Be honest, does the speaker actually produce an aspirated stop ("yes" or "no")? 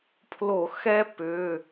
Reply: yes